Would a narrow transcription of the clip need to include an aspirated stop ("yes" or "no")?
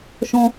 no